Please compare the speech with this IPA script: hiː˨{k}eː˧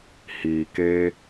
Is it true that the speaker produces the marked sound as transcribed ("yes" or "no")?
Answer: yes